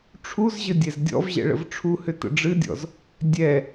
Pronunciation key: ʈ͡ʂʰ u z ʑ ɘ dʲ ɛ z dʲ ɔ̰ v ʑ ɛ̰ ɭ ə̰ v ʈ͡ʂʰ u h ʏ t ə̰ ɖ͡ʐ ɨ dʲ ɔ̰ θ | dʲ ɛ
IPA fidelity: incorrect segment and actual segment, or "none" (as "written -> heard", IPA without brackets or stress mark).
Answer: θ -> z